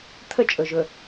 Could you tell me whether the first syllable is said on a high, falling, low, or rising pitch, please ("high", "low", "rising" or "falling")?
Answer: high